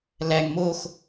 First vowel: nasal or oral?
oral